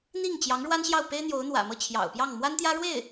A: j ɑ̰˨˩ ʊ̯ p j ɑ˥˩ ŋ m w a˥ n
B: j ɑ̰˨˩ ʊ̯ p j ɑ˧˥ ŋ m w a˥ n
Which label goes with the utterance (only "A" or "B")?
A